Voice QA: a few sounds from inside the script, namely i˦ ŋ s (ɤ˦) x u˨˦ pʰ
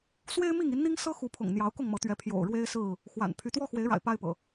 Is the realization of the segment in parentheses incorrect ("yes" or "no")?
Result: no